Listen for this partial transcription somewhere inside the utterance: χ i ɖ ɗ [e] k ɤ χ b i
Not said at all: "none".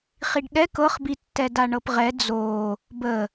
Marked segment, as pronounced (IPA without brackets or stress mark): ɛ